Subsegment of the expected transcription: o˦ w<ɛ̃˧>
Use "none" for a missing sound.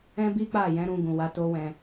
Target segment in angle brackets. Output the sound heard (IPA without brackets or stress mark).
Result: ɛ̃˧